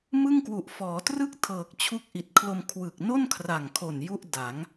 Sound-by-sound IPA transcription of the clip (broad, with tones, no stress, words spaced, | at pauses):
mɯ˥˩ŋkwu˨˩ʔ fɔː˩˦trɯ˥˩k̚ tʰɤː˨˩k̚t͡ɕʰu˦˥k̚ʔi˨˩t̚kʰlo˧m kʰwɯ˨˩k̚no˥˩nkʰra˨˩ŋkʰo˨˩n ju˥˩ʔda˩˦ŋ